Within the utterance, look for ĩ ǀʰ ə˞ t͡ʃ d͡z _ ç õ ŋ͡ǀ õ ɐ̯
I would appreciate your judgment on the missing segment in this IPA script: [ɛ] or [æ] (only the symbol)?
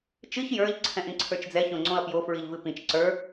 ɛ